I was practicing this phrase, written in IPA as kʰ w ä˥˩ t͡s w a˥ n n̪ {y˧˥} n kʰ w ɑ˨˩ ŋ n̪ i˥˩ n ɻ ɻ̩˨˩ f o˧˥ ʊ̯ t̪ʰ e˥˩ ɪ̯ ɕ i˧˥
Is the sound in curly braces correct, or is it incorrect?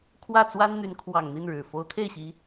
correct